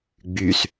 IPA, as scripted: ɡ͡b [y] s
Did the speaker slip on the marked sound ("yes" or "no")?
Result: no